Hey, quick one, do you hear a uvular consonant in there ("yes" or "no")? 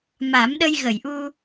no